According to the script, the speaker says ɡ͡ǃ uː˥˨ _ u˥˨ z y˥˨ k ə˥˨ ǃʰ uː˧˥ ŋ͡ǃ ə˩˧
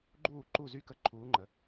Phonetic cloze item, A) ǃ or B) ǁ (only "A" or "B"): A